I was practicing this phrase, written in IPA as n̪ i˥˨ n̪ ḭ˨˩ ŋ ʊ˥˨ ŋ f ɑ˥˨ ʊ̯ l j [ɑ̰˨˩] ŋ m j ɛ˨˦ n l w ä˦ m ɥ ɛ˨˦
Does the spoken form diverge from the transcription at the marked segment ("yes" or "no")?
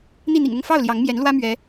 yes